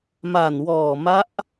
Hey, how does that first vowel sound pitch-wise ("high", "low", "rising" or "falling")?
low